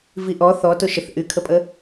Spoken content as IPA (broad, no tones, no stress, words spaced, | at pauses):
viʔɔ θɔ toʃəθ ʔykʰəpʼə